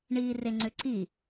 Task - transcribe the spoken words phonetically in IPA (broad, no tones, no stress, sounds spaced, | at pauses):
ɳ iː r e ŋ͡ǀ ʏ ǀ i